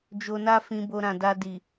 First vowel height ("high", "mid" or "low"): mid